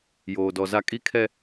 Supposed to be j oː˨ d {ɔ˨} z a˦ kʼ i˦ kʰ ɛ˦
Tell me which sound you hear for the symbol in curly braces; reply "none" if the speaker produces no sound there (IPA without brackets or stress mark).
ɔ˨